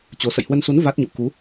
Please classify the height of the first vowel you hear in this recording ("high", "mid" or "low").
mid